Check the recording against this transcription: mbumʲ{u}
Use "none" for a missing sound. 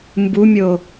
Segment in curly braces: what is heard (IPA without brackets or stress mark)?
o